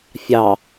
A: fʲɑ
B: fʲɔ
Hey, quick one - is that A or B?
A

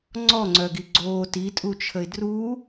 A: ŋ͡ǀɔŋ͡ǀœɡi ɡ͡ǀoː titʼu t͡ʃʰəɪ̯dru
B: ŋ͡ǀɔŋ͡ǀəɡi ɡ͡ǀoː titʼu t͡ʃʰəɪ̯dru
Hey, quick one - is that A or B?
A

